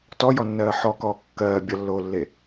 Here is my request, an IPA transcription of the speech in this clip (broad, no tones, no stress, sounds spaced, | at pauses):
t ɔ j ɔ nː ɜː ħ ɔ k ɔː kː ɜː bʲ ʌ lː oː lː e